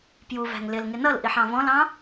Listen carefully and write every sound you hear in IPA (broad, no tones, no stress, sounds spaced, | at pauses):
p j u v æ̤ ŋ l ɪ l ŋ ɪ n ʌ l ʔ i ħ ɑ̃ v ɔ̃ l ɑ̃